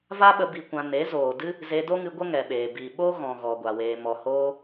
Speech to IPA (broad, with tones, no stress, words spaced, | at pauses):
va˦ɓə˧ bi˧kʷã˧ ne˨˦zoː˨dɨ˦ | ze˧do˦ŋɨ˧ ɡʷə˦ŋɛ˨ɓeː˨ bi˨ ɓo˦ɣɔ̃˨ɣɔ˨ ɡʷa˨weː˧mɔ˧ hoː˦